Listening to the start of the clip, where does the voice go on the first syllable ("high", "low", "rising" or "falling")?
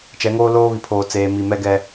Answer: rising